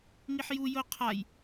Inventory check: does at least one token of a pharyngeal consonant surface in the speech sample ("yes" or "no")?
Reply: yes